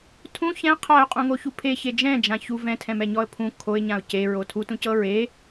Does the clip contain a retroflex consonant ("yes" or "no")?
no